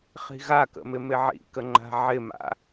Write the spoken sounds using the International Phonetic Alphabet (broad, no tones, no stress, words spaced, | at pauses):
χi̤ɣakə̰ mɪmɪʕḭkə ŋ͡ǃa̤ʕɪma̰